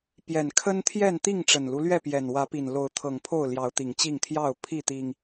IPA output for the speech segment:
p j ɛ˨˩ n kʰ ə˦ n t̪ʰ j ɛ˥˨ n t̪ i˥˨ ŋ ʈ͡ʂ ə˨˩ n l u˦ l ɥ ɛ˥˨ p j ɛ˨˩ n w ä˨˦ p i˨˩ n l o˨˦ ʊ̯ t̪ʰ ɤ˨˩ ŋ pʰ o˥˨ ʊ̯ l j ɑ˨˦ ʊ̯ t̪ i˨˩ ŋ t͡ɕ i˥˨ ŋ t̪ʰ j ɑ˥˨ ʊ̯ pʰ i˥˨ t̪ i˨˩ ŋ

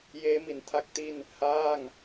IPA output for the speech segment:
j eː˦˥ m i˩˦ n tʰ a˦˥ k̚ t i˥˩ n | h aː˥˩ ŋ

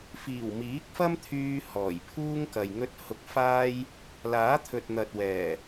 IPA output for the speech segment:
f iː˨˩ w m iː˨˥ k̚ f ɐ˥ m t̪ʰ yː˧ h ɔː˨˩ j pʰ uː˥ ŋ k ɐ˨ j ŋ ɵ˧ t̚ h ʊ˧ k̚ f aː˥ j | l aː˨˥ t̪ʰ ɵ˨ t̚ n̪ ɐ˨ t̚ w ɛː˨˩

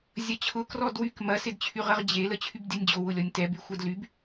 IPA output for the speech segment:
zʲ ɐ t͡ɕʰ ʊ k r ɔ d w y k m ɐ s ɪ d t͡ɕʰ y ʁ ə ʁ d͡ʑ e l ə t͡ɕʰ y b dʲ ɐ nʲ d͡ʑ o w ʊ lʲ ɔ nʲ t ɛ b y xʷ ɛ d l y b

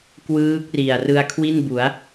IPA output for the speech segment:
k w ɯː˦˥ k̚ r i˨˩ a̯ r ɯ˧ a̯ kʰ w i˥˩ n b u˩˦ a̯

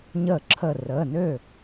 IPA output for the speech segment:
ɲ ə˧˩ ǁʰ ə˧˩ r əː˩˧˩ n ø˥˩

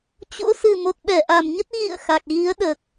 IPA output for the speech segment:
t͡ɕ o̰˧˥ s ɨ˨˩ m o˨˩ t̚ ɓ ɛ˧˩ ʔ a˨˩ m ɲ ə˦˥ t̚ ɣ ḭ˧˨ ə̯ x a˨˩ k̚ ɣ i˨˦ ə̯ ɗ əː˨˩ k̚

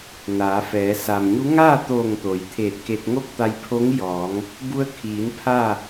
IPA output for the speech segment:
n aː˩˧ f ɛː˩˧ s a˩ m ɲ u˧˥ ŋ aː˥˨ t̪ oː˧˩ ŋ t̪ oː˩˧ j t̪ʰ eː˧˩ t̚ k e˧ t̚ ŋ o˥˨ k̚ t̪ a˧ j pʰ o˧˥ ŋ j ɔː˩˧ ŋ | b u˧ ə̯ kʰ iː˩˧ n pʰ a˥˨

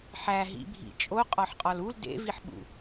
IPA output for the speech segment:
ħ æ ɦ ḭ bʱ ḭ t͡ʃʼ o qʼ ɒ ħ qʼ ɒ l u l d ḛ v i ħ ɓ ṵ

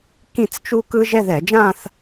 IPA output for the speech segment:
k ĩ˥˧ t͡s t͡ʃ u˥ k ɯ˥ ʒ ɛ˥˧ ð ɛ˧˩˧ d͡ʒ ãː˥˧ θ

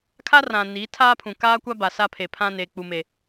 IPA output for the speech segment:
kʰ a˦ r ã˨ n i˨˦ tʰ aː˦ pʰ ũ˨ k aː˦ kʷ a˦ b a˨ s a˦ pʰ e˨ pʰ ã˦ n eː˨ k͡p u˨ m e˨

